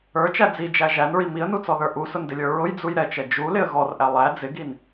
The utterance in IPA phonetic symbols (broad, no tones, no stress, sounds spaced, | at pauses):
ə˞ t͡ʃ æ d͡z i d͡ʒ æ ʒ æ n ɹ i m i ə̯ n u t͡s ɔ ð ə˞ ʔ u s ʊ n d ɪ lʲ ə˞ ɹ ʊ j d͡z u j ɾ ɛ t͡ʃ ɛ d͡ʒ u l ɪ ə̯ ɣ ɔ r ʔ æ lˠ æ d͡z ɪ ɡ i n